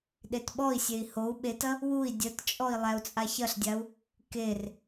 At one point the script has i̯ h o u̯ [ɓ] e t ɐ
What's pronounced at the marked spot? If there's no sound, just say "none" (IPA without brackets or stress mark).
ɓ